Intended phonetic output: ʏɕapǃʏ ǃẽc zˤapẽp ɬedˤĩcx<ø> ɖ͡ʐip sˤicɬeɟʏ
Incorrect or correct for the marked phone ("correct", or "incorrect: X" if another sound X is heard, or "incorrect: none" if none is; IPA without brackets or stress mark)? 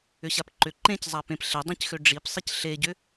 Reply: correct